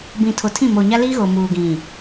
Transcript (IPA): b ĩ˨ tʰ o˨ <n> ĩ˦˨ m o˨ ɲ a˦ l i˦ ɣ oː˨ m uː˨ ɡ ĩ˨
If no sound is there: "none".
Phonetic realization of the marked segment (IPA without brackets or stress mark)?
tʰ